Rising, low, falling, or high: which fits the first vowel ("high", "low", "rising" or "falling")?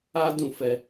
high